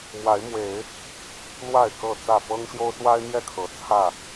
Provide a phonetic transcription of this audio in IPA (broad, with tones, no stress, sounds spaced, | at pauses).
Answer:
m w a˨˦ ɪ̯ m w e˨˦ ɪ̯ | l w a˥˨ ɪ̯ k ɤ˥˨ t͡s ä˥˨ f ɤ˦ ŋ ɕ j o˦ ʊ̯ s w a˦ ɪ̯ n̪ j ɛ˥˨ kʰ ɤ˨˩ t͡sʰ ä˥˨